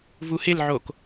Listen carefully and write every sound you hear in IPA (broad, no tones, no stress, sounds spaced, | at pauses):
v u h ɪ l ʕ o k